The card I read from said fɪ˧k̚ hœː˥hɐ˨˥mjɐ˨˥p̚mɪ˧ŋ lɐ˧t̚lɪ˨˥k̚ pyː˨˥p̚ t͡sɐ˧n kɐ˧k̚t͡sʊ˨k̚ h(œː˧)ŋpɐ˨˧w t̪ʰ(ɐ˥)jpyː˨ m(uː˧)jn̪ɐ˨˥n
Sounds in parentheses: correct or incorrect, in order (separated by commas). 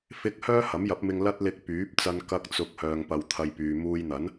incorrect, incorrect, correct